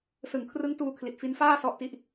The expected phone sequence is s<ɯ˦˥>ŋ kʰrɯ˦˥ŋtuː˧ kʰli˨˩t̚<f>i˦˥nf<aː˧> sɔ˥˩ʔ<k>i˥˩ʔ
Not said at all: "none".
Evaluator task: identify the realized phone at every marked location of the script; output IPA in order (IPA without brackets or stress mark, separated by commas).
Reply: ɯ˩˦, f, aː˥˩, t